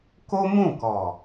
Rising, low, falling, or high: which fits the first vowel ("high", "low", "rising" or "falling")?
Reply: high